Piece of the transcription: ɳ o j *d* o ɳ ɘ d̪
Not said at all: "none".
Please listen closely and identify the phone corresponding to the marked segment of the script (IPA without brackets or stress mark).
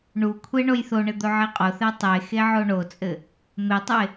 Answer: θ